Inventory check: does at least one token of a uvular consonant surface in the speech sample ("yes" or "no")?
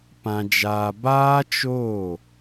no